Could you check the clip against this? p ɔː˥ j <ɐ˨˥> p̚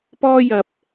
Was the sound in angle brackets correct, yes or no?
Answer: no